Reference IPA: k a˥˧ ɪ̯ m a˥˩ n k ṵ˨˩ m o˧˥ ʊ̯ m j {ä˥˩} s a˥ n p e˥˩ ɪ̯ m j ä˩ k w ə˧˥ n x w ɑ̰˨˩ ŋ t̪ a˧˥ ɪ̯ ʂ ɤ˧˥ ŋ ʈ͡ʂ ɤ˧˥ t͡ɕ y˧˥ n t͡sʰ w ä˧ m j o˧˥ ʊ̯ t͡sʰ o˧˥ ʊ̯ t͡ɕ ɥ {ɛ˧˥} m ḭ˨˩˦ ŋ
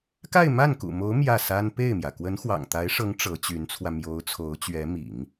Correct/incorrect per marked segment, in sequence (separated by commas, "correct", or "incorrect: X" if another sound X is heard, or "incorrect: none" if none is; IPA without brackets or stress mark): correct, correct